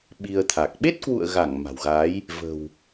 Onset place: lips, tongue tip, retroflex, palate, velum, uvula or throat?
lips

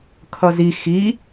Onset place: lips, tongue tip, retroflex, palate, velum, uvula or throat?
velum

